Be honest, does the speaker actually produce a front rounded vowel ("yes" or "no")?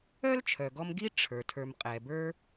yes